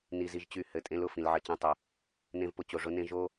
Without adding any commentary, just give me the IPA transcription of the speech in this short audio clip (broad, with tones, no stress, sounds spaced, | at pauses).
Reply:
n i˦ z i˦ ʒ t͡ɕ y˦˨ h ɘ˦˨ tʼ ẽ˦ l ʊ˨ f ĩ˧ l ʕ ɘ˧ t͡ɕ ẽ˦ tˤ ʊ˧ | n ẽ˦ v p ʊ˧ t͡ɕ o˧ ʐ ʊ˦ n ẽ˦ ʒ o˦